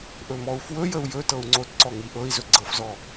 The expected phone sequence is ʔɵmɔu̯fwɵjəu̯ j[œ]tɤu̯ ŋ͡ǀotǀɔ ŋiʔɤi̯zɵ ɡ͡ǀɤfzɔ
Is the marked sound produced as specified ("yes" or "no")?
no